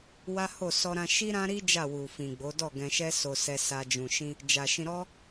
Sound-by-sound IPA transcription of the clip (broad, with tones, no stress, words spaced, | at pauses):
wa˦ho˦˨ sɔ˧ɾã˧ ʃi˦ɾã˦ɾi˦ d͡ʒa˦˨wu˨fĩ˨ɡ͡bo˨˦ dɔ˦˨ɡɛ̃˧ʃɛ˦ so˧sɛ˧sa˧ d͡ʒũ˨ʃĩ˧ | d͡ʒa˨ʃĩ˧ɾɔ˦